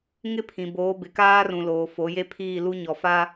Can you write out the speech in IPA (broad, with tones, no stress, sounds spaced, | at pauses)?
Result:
ŋ ɪ˦ pʰ ĩ˨ b oː˨˦ b ɪ˨ k aː˦ r ũ˨ l oː˨ f o˨˦ j e˦ pʰ iː˦˨ l u˦ ɲ ɔ˨ f a˦